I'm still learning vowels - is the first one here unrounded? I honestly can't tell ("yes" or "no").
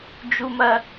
no